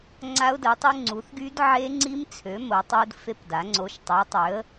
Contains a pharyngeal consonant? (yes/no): yes